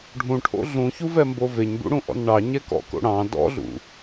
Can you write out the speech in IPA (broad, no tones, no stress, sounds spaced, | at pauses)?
ɖʱ ũ ʈʰ o̰ ɮ ũ ç u v ɛ m b o v e ɲ b ṵ ɽ ũ ʔ ɔ̰ n ɳ ɑ ɲ ɛ k ɔ̰ k o̰ ɽ ɑ̃ d ɔ̰ ɮ ṵ